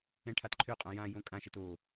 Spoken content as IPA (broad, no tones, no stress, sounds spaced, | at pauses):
ɛ̃ ʈʰ a t ǃʰ ø qʼ ã j ã j õ kʼ ã ʃ ɛ t o